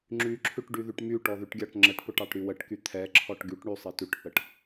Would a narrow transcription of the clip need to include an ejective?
no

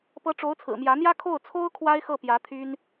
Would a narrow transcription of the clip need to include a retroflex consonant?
yes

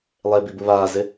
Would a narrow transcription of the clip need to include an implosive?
no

